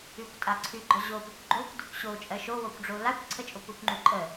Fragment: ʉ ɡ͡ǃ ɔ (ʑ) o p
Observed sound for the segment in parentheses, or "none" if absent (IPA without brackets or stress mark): ʑ